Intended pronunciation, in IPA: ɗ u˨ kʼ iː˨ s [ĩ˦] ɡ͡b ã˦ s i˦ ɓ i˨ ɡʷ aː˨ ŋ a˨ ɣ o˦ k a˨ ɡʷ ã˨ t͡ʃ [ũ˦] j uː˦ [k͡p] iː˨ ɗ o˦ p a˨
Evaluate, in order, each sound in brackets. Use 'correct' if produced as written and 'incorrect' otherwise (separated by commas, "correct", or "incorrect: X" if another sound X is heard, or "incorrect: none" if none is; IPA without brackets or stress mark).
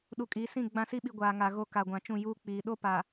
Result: incorrect: ĩ˦˨, incorrect: ũ˦˨, correct